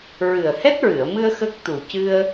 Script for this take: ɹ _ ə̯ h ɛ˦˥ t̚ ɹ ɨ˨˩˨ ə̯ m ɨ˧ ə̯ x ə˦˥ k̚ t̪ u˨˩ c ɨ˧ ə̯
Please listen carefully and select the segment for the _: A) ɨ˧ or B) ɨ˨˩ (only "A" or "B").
B